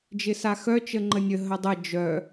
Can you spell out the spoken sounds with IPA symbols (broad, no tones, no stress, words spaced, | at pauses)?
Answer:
d͡ʒɪsaxœt͡ʃ əŋ͡ǃənʲə ɦədˤə d͡ʒœ